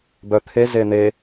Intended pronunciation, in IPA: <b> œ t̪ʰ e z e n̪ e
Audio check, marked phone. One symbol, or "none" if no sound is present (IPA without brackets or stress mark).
b